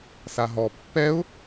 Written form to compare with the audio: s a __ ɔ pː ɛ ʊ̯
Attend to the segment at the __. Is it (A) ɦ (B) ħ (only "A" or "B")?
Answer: A